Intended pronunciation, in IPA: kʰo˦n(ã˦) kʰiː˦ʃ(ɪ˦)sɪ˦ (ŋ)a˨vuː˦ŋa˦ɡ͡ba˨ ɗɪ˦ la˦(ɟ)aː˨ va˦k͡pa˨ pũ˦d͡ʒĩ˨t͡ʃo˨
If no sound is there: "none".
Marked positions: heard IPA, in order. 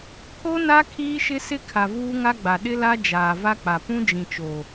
a˦, ɪ˦, kʰ, d͡ʒ

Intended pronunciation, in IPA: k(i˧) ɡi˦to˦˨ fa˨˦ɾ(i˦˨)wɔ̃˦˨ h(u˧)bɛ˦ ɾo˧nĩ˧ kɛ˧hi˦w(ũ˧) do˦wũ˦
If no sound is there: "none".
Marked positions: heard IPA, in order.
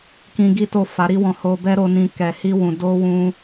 ĩ˧, i˦, o˧, ũ˧

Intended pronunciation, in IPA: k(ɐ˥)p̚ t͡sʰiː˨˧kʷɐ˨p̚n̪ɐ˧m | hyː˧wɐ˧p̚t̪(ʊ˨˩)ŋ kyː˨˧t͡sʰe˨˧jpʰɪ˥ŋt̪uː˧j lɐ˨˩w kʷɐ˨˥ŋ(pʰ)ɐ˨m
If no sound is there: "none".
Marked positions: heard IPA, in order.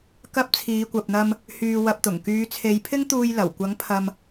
ɐ˥, ʊ˨˩, pʰ

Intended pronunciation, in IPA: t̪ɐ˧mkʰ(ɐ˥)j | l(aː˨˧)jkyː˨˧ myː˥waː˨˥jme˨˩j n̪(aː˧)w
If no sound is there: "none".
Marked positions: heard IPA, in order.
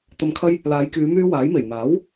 ɐ˥, aː˨˧, aː˨˥

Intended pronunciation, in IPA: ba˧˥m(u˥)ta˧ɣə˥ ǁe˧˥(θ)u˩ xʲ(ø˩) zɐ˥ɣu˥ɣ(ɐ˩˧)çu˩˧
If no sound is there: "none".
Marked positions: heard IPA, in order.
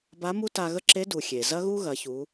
u˥, d, e˩, ɐ˩˧

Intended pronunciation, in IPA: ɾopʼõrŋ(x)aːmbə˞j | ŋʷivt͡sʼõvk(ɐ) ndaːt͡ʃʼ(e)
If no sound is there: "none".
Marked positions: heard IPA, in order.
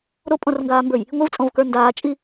ɡ, ə˞, i

